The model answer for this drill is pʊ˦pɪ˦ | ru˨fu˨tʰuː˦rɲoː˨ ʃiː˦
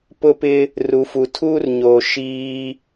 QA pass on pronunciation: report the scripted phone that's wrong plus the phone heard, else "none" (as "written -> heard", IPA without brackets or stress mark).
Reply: none